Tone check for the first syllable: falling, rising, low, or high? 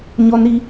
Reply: high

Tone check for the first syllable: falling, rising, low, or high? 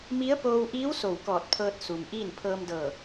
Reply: rising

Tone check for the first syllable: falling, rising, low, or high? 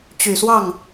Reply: low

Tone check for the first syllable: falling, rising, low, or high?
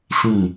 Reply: falling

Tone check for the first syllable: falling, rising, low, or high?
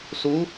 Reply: rising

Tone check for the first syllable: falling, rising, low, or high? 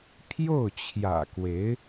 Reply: falling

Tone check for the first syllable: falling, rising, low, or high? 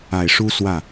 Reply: low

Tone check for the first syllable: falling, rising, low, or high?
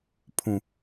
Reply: low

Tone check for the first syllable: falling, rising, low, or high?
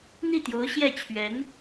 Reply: falling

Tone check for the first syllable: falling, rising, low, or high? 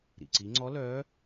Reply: low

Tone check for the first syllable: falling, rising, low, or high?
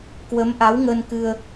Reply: rising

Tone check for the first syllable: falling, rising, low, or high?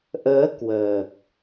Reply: rising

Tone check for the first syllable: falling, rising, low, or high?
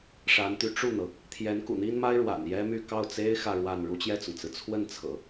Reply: rising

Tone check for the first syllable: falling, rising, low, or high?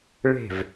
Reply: falling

